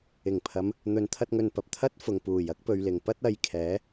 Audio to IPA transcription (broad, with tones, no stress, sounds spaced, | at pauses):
ɪ˨˩ ŋ pʰ ɐ˨˧ m | n̪ ɵ˨˧ n t̪ʰ ɐ˧ t̚ ŋ ɵ˨ n p ɐ˨ p̚ t̪ʰ ɐ˥ t̚ f ʊ˨ ŋ p uː˨˩ j ɐ˥ k̚ p ɵ˨ ɥ l ɪ˨˩ ŋ p ɐ˥ t̚ ɐ˨˧ j kʰ ɛː˨˥